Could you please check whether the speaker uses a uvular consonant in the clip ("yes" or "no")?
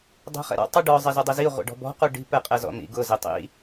yes